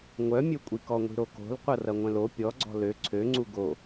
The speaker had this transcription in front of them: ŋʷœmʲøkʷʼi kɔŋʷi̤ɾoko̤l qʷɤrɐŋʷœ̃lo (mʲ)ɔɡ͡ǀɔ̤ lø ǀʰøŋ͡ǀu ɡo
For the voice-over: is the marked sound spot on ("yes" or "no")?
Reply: no